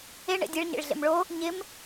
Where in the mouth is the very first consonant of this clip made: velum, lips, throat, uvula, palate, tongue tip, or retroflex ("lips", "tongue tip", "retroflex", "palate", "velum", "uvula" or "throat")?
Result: retroflex